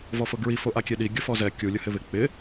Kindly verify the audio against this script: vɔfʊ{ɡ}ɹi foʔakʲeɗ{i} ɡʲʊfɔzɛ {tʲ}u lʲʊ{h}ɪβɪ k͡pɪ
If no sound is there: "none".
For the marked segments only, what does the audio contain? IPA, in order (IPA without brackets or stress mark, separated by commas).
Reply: ɡ, i, kʲ, h